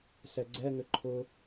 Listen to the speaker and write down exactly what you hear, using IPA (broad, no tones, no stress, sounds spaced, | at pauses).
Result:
s ɛ ɡ͡ǀ ɛ ŋ ʏ ǃʰ ʊ